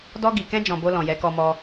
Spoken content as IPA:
d ɔ˧ ɡ i˨ k ɛ̃˧ d͡ʒ ɔ̃˨ b o˧ l ɔ̃˨ j ɛ˨˦ k ɔ˧ m ɔ˧

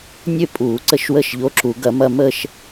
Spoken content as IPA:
nʲ ø˥˧ pʼ uː˨˩˦ ǀ ə˦˥ ʃ w ə˦˥ ʃ ʎ o˨˥ ǁ u˨˩˦ ɡ ɐ˨˩˦ m ɐ˥˧ m ə˥˧ ʃ

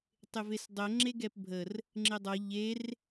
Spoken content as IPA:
tˤ ɪ v e s dˤ ɛ ŋ͡ǁ e ɡ ɛ p bʱ ə r | ŋ͡ǁ ɪ dˤ ʌ ʎ e r

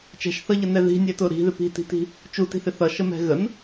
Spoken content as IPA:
t͡ʃ ɛ̤ ʃ θ ʌ ʎ ʌ n ɛ ð i̤ nʲ ɛ t ʊ ɾ i̤ ð ɪ p i̤ t i̤ t i̤ | t͡ʃ u t i̤ θ ɪ θ ʌ ʃ ə m ɛ̤ ɣ ə n

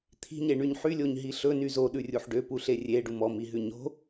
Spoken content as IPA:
t̪ʰ i̤ ɲ e ɳ y ɲ ħ y lʲ o ɲ ɦ i ɬ ɵ n y z o ɗ ʉ rʲ u ħ ɖ ø p u ɬ e rʲ e ɖ u m ɔ m i ɦ ʉ ɲ o̤

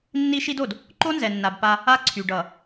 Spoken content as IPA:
nː i˦ ʃ i˦ d o˨ d | ǃ o˦ n z ɛ˨ nː a˨ b p a˦ | a˦ ǀʰ y˨ ɖ ʌ˨

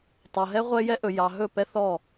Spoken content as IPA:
tˤ ɤ˨ ɦ ɛ˦ ʁʷ ɛ˦ j ɛ˦ ʔ ɵ˨ j ɑ˨ ɦ ɵ˦˨ p ɛ˦ θ ɔ˦˨

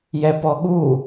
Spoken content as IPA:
j ɛ p ɔ ɠ u

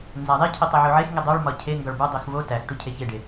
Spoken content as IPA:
n z æ ðˤ i cʰ i tˤ e ʕ u ʕ e x ŋ i dˤ o ɭ m ɒ cʰ e ŋ ɡ ɒ ɭ b u dˤ i x v o t æ x ʈ u cʰ e ç e ɖ e

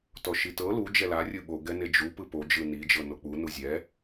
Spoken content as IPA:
t ɔ ʃ i t ɤ l u d͡ʒ ɛ l a rʲ ɯ ɓ o ɡ ɛ n e d͡ʒ u p ɯ p o d͡ʒ ɯ n i d͡ʒ ɤ n o k͡p u n u zʲ ɛ

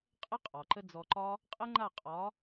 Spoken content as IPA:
qʼ ə˦ qʼ ɒ˨ ǃ ə˦ d͡z ɔ˧ ǃ ɒ˦ | qʼ ə˦ ŋ͡ǃ a˦˨ qʼ ɒ˨˦

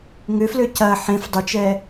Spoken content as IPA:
ŋ ʏ f l ø c ɐ ħ ẽ f dˤ ʏ t͡ʃ ɛ

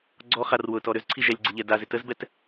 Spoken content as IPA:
ɡ͡ǀ ɔ χ a r w ʊ t ɔ ɾ ʏ z ǀʰ i ʒ ɛ lʲ ɡ͡ǀ ɪ ʎ ɛ d a z ɪ t ə z b ɛ t

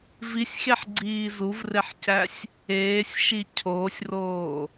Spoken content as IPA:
v i sʲ x e ħ ɡ͡ǀ iː z u v r e ħ c æ sʲ | eː sʲ ʃ i cʰ oː sʲ r oː

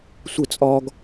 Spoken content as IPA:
sʷ ə t͡sʼ ɒ ɡ

